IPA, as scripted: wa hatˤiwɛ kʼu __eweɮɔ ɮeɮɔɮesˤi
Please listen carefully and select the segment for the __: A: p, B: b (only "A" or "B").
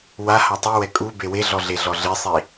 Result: B